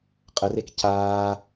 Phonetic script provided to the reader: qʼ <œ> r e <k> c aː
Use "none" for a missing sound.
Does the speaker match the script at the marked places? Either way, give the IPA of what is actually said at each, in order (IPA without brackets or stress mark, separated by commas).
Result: ə, k